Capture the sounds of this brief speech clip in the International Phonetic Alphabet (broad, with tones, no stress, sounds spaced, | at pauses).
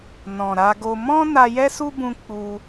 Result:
n ɔ̃˨ ɾ a˧ ɡ o˧ m ɔ̃˦ n a˧ j ɛ˦ s u˦ b ũ˧ k͡p u˦